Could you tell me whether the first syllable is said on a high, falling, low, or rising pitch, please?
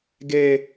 high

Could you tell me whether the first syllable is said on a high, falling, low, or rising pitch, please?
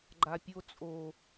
low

